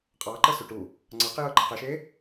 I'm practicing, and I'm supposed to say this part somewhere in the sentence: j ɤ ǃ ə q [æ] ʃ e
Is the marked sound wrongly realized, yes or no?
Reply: yes